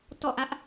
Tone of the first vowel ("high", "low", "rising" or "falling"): falling